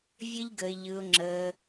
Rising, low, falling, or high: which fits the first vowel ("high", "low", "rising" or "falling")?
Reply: high